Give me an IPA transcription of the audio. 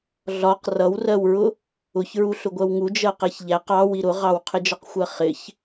ɮ ɒ q r ʌ w r ɜ w ɹ ʊ | ʊ ç ɹ u ɬ ʊ ɡʷ ɜ w ŋ u d͡ʒ ɜ q ɛ ç ʎ æ q ɑ w i ɾ ʊ ʁ ɑ w qʰ ɪ d͡ʒ ɒ q xʷ ɜ χ ɪ ç

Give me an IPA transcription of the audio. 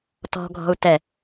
t ɔ̤ ɡʱ ɔ̤ u̯ t ɛ

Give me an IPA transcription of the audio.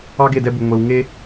ɑ˦ ɡ e˦˨ d ɛ˦ b u˨ ŋʷ e˨ w ŋ e˦

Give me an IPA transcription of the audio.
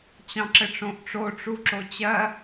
t͡ɕ ɑ̃ ǁ ɘ ʈ͡ʂ õ ʔ ʈ͡ʂ o ʈ͡ʂ u ǁ o t͡ɕ ɜ

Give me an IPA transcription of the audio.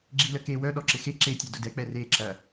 ɡ͡ǁ i l ə k e w œ ɗ ɔ ǁ ɪ x e ǁ e tʲ e d ʊ d ɛ k͡p ɛ r e ǁ ɐ

